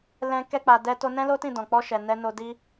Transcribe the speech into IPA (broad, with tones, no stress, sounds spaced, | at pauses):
l ɛ̃˧ k ɛ˧ k͡p a˨ d ɛ˧ t o˧ n ɛ̃˦ l o˦ t ĩ˦˨ d ɔ̃˨ k͡p ɔ˧ ʃ ɛ˨ n ɛ˧ n o˧ d i˦